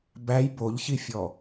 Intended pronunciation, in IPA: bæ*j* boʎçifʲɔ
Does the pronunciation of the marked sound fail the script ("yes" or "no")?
no